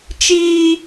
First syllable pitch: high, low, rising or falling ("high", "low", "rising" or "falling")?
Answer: high